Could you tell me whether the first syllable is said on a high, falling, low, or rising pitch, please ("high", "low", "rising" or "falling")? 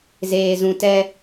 low